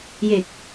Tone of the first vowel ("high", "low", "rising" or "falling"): low